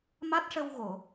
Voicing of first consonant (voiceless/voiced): voiced